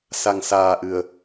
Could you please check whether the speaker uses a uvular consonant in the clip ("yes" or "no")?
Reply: no